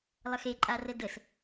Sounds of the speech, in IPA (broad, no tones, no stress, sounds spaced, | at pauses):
lˠ ə x e ǃʼ a r ə d ə s